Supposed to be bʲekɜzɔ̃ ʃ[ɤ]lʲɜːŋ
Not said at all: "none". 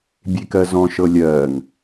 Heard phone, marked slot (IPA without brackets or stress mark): ɤ